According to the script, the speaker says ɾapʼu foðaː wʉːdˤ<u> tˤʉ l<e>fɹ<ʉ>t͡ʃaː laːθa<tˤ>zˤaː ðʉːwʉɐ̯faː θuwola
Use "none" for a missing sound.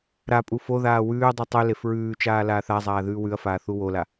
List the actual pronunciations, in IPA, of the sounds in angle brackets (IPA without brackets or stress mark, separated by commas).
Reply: u, e, ʉː, none